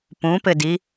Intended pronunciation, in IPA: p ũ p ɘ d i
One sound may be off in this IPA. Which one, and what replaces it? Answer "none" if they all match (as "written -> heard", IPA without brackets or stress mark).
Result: none